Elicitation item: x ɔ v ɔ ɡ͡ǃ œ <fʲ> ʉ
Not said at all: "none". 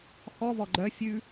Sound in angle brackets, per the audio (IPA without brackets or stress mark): fʲ